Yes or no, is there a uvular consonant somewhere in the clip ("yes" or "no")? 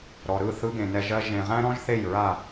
yes